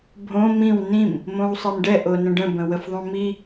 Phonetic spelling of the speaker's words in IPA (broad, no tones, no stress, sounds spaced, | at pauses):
bʱ õ m ĩ w n ĩ m | m õ w sˤ i m ɖ ɛ ʔ o n ə̃ ɖ ə̃ b ə̃ w ə f ðˤ õ m i